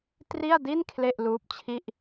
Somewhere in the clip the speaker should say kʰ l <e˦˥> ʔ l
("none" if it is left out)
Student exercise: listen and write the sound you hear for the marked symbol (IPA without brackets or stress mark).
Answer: e˥˩